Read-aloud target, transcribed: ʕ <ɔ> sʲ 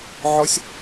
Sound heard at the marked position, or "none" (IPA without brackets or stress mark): ɔ